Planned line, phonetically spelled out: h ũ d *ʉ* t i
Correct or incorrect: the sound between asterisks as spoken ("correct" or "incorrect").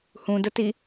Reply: incorrect